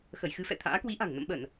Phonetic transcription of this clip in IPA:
xə˧˩jxɨ˧fɛ̰˧˨t̪ʰa̰ː˧˥ kwi˨˦ʔa̤˨˩ŋ nə̰˧˨mɓə˧˩˨n

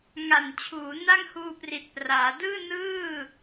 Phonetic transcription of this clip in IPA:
ŋa˨˩nt͡ɕʰuː˩˦na˥˩ŋhuː˧ pri˨˩t̚praː˩˦ dɯː˥˩nɯː˥˩

